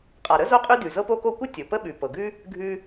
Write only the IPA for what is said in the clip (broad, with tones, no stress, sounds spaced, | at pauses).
qʼ a˩ ɾ ə˥ z o˥ qʼ ʉ˥ d ʉ˩ z ɤ˥ p o˥ k o˥ kʷ ə˥ tʲ o˩ p ə˥ ɓ ʉ˩ p ɤ˩ ɡ ʉ˥ | ɡʱ ʉ˥